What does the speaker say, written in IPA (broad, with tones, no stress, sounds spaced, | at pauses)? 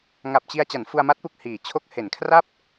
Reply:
ŋ a˨˩ p̚ t͡ɕ i˧ a̯ t͡ɕ a˩˦ n f u˧ a̯ m a˦˥ t̚ p u˨˩ k̚ h iː˩˦ t͡ɕʰ o˦˥ k̚ h e˩˦ n kʰ r a˥˩ p̚